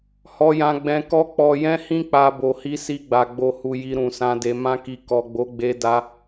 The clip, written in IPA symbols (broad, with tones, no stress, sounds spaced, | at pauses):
h ɔ˨ j ã˨ ɡ͡b ɛ̃˨ k ɔ˧ k͡p ɔ˨ j ɛ̃˧ h ĩ˧ k͡p a˨ b o˨ h i˧ s i˧ ɡ͡b a˨ ɡ͡b o˨ h u˨ j i˧ ɾ ũ˨ s ã˧ d e˧ m ã˧ k i˨ k ɔ˨ ɡ͡b o˨˦ ɡ͡b e˧ d a˧